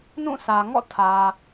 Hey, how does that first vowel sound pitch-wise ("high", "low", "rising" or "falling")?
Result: falling